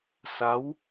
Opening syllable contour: rising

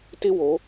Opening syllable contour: high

